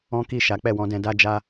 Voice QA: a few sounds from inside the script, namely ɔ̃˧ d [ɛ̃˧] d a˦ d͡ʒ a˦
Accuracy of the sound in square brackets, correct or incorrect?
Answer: correct